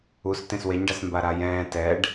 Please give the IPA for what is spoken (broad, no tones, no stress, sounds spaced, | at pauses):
u s t ẽ s w e ɲ ɖ a s m b a ɾ a j ɛ̃ː t ɛ ɖ